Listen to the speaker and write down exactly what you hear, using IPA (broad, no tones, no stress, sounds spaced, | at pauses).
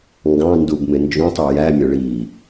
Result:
ŋ ɡ ɑ̃ n d u b m ɪ n d͡ʒ ũ tˤ u j æ mʲ ʌ ɭ i